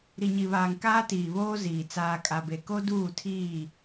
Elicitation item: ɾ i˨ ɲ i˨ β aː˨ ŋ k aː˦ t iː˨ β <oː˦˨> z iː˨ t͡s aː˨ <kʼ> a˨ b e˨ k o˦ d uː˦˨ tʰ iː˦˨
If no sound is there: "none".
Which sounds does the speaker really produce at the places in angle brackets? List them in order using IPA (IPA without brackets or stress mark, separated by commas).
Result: oː˦, kʼ